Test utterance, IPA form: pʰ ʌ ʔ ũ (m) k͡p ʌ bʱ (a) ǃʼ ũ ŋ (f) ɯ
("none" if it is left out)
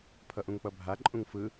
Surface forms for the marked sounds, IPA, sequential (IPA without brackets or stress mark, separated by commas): ŋ, a, f